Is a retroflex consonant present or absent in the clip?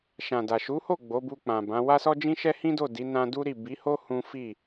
absent